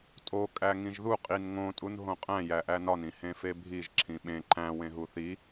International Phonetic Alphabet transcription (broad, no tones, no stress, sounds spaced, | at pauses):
tʼ o kʼ æ ŋ ĩ ʒ ð u qʼ i n ŋ õ tʼ u n ɦ õ qʼ æ̃ j æ ʔ æ n ɒ n ĩ h ẽ f e bʱ i ʒ ǁʰ ĩ ɓ ẽ ǃ æ̃ w ẽ ɦ u θ i